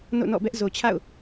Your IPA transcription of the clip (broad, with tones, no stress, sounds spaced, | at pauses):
n o̰˦˨ n ɔ̰˦˨ b ɛ˦ ʔ z o˨ t͡ɕʰ a̰˦˨ ʊ̯